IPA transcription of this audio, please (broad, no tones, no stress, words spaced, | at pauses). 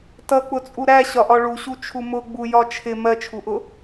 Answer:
tʌk͡pʊt͡sʼu ɾæɕɒʔɒ ɭuɕut͡ʃʰu mʊɡ͡bu jɒt͡ʃʰɪ mɜt͡ʃʰuʔʊ